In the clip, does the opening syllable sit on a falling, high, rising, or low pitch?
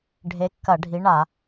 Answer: rising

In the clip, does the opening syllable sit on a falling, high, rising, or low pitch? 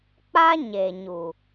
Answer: high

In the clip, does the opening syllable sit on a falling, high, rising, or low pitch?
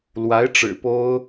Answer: rising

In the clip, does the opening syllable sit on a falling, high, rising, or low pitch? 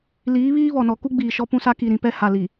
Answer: rising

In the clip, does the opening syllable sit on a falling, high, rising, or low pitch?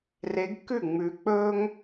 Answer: rising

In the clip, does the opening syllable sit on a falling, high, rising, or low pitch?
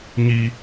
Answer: high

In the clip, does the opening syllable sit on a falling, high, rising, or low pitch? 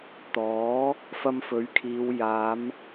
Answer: rising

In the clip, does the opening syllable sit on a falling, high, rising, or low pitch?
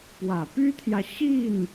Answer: low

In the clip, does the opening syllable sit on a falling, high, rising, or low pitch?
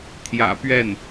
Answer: low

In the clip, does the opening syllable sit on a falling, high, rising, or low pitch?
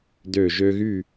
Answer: low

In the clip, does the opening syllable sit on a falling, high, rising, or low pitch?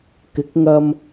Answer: rising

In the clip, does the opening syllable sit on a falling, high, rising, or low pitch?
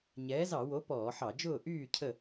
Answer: rising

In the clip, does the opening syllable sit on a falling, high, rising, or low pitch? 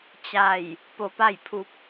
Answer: falling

